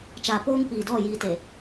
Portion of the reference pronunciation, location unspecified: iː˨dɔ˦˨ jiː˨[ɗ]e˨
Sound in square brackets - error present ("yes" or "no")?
yes